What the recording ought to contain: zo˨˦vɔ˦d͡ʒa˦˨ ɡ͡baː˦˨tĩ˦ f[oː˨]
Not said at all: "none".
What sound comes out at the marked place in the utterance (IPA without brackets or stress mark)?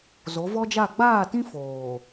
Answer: oː˨